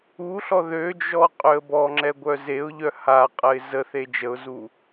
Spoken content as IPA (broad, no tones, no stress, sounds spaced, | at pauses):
u ɬ ɔ ð ø d͡ʒ ɔ qʼ ø ə̯ b ɔ ŋ͡ǁ ɛ ɡʷ œ z e ʊ̯ ʎ œ h a qʼ ə ɪ̯ z ə θ e d͡ʒ ə ʊ̯ z u